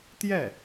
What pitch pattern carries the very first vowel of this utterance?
falling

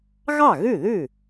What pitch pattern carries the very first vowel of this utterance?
falling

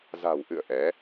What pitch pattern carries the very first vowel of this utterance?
low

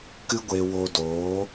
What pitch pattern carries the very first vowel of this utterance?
high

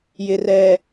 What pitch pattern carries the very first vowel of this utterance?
low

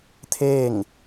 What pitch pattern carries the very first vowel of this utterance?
falling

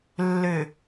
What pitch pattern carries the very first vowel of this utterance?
low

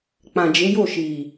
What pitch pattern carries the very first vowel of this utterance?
low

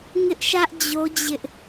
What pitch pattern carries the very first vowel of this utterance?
high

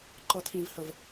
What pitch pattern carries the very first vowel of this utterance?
high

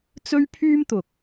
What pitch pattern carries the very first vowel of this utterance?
high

